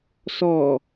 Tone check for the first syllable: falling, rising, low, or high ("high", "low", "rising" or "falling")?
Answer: low